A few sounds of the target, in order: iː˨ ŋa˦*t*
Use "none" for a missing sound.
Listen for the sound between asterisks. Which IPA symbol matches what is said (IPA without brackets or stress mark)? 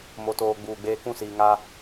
none